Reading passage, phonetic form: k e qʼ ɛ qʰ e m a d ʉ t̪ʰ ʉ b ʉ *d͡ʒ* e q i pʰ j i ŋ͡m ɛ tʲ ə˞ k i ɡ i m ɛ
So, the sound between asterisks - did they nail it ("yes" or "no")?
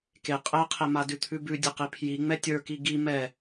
no